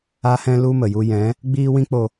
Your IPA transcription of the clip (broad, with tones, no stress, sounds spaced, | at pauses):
a˦ h ɛ̃˦ l u˦ m ə˨ j u˧ j ɛ̃˨˦ | ɡ͡b iː˦ w ĩ˦ k͡p o˧